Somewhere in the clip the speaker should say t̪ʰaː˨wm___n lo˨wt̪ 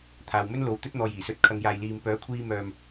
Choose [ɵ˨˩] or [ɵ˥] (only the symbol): ɵ˥